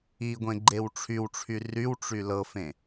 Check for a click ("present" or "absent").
present